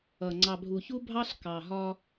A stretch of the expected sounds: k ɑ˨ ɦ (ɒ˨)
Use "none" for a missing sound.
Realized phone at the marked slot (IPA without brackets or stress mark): ɒ˦